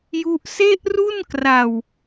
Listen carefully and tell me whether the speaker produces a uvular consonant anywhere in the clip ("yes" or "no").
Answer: no